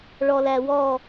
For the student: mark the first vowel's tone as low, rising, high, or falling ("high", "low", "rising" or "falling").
low